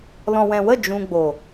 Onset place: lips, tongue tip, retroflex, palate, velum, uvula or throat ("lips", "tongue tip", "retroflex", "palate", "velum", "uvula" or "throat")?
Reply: tongue tip